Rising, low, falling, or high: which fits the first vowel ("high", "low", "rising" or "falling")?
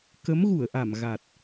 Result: rising